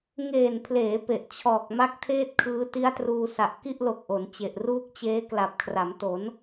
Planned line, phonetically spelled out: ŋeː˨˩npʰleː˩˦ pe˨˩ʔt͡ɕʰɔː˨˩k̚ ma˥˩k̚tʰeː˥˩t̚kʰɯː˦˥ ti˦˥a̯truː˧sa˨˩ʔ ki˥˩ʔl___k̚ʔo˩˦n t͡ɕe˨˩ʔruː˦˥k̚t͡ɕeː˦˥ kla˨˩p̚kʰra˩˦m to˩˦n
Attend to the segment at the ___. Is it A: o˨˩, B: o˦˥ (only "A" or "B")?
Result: A